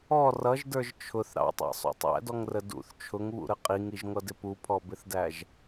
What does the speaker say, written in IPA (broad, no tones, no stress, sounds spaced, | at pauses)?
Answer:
ɔ r ʌ ʒ d ə˞ ʒ t͡ʃʰ ʊ θ ɾ ɑ̰ tˤ æ̰ sˤ ṵ tˤ æ̰ d ɔ ŋ r ə d ṵ θ t͡ʃʰ ʊ ŋ β ṵ ɾ ə qʼ i ŋ i ʒ ŋʷ ʌ d ɪ p u pʰ ɔ b ɪ θ d æ ʒ